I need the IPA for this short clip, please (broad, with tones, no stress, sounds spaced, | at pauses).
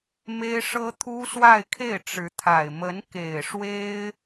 m e˥ ɪ̯ ʂ ɤ˥ t̪ʰ u˥ s w a˥˧ ɪ̯ kʰ e˥˩ ɪ̯ ʈ͡ʂ ɻ̩˧˥ t̪ʰ a˨˩ ɪ̯ m ə˧˥ n k e˨˩ ɪ̯ ʂ w e˥ ɪ̯